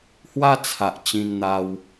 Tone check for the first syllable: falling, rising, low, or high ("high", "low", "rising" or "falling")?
high